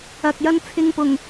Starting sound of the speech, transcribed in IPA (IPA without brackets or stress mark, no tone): ɐ